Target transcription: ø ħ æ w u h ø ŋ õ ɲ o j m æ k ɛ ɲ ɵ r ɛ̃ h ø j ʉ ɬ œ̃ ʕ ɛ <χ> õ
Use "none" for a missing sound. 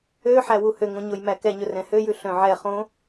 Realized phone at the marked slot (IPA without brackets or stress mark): χ